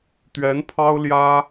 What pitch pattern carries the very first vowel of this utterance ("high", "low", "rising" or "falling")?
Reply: rising